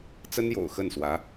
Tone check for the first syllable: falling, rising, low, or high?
high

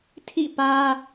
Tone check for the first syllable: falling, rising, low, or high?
falling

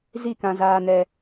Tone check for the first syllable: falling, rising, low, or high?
falling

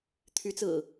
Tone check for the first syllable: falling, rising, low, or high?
rising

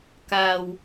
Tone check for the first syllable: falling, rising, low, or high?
low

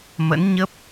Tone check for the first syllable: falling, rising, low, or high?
rising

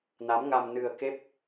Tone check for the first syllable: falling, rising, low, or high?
rising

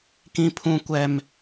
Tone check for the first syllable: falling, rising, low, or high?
high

